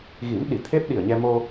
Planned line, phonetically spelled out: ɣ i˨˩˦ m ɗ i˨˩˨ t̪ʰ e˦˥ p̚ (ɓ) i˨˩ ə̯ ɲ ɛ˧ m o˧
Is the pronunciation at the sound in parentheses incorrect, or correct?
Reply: incorrect